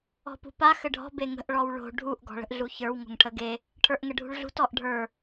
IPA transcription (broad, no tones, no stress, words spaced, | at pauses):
ɔ̤pṳpa xɘɖʱɔ̤ beŋə̤ʔ ɭɔwɭo̤ ɖʱuʔ ɡɔ̤ɭə̤ʔɮuçə˞w ŋo̤ŋʈʰəɡe | ʈʰə˞ʔŋəɖʱṳɭɮṳt ɔʔɖʱə˞